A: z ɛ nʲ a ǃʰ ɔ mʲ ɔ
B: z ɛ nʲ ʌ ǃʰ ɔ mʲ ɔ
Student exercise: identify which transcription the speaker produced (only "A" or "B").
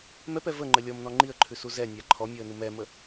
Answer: A